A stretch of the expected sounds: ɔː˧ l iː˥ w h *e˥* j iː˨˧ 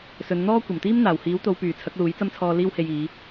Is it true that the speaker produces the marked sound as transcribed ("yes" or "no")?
no